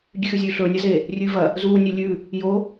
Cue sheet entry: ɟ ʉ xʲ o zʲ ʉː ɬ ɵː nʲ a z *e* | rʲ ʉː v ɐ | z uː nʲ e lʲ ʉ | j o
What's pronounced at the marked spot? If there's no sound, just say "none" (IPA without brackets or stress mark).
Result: e